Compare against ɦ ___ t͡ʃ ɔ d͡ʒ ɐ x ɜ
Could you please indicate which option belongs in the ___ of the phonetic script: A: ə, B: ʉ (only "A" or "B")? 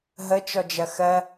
A